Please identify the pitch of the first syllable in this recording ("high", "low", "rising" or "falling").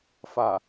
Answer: low